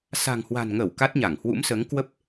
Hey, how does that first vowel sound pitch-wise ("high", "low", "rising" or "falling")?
low